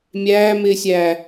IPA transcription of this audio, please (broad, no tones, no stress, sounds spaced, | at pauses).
mʲ æː m ɪː sʲ æː